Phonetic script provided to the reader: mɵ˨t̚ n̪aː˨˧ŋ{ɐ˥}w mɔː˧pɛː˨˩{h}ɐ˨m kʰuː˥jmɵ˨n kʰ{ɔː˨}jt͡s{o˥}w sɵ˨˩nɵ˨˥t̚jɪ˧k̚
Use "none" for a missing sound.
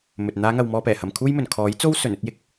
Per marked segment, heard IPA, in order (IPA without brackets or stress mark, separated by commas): ɐ˨, h, ɔː˨˥, o˥